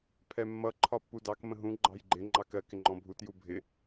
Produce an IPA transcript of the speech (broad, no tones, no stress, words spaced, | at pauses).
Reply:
pʰɛmːʌ ǃʰɒpːudɑk mə̃ɦũ ɡ͡ǃɑ̤jɡ͡ǃɪ ŋ͡ǃɑkɜk ɪŋ͡ǃɔ̃bʱut jubʱɪ